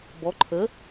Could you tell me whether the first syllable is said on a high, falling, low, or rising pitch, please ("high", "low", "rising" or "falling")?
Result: rising